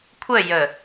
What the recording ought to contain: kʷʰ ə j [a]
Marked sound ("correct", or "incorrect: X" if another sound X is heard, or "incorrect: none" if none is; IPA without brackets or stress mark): incorrect: ə